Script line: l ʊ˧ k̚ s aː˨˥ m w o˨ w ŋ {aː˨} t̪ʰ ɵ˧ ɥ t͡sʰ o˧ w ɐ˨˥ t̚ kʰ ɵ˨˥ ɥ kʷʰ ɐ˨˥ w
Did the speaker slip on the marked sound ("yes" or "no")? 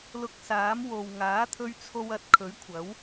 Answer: yes